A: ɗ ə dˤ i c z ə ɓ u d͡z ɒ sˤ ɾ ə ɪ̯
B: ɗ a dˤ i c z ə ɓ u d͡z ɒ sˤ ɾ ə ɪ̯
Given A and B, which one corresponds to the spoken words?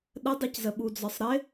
A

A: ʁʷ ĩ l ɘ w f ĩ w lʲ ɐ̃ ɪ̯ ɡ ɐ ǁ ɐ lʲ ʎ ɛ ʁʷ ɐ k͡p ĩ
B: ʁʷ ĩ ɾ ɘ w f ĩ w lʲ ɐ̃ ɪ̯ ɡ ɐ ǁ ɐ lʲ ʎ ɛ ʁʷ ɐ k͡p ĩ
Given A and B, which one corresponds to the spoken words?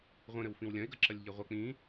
B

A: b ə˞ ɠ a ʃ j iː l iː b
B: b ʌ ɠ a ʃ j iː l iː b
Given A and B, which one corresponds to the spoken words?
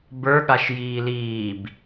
A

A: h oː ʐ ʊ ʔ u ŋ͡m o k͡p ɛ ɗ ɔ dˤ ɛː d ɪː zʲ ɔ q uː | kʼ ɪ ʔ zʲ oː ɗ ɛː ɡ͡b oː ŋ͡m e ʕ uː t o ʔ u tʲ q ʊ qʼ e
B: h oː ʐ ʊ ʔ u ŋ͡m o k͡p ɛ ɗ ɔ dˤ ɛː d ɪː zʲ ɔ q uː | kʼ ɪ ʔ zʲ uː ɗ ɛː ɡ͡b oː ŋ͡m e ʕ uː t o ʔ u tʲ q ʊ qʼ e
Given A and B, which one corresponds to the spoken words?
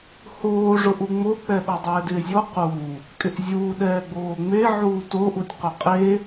B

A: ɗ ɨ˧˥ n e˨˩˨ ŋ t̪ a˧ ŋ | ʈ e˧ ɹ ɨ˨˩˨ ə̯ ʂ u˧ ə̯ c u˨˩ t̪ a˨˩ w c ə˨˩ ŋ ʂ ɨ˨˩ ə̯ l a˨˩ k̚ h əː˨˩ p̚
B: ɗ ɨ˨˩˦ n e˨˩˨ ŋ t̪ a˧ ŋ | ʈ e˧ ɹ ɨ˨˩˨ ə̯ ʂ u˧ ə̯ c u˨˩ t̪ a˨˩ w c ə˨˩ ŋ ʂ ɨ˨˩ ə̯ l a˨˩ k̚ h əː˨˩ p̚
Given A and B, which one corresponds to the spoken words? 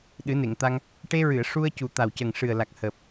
B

